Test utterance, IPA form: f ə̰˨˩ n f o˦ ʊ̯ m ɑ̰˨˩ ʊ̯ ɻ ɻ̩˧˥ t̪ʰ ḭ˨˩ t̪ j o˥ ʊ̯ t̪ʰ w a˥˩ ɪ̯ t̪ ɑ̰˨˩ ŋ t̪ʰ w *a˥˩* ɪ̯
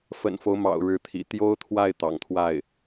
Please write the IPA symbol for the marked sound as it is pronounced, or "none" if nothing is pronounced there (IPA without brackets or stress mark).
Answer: a˥˩